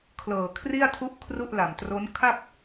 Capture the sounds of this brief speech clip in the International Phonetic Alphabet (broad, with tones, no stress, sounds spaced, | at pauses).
kʰ l ɤː˨˩ kʰ r i˥˩ a̯ tʰ u˦˥ ʔ kʰ r u˥˩ ʔ l a˨˩ m t r o˦˥ n kʰ a˥˩ k̚